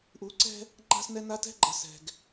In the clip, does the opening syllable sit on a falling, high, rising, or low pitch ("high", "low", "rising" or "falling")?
rising